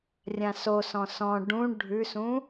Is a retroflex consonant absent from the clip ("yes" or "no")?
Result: no